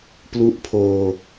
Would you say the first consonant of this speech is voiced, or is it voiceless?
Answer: voiceless